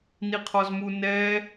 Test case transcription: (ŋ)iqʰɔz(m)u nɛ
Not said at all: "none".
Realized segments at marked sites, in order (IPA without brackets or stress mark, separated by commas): n, m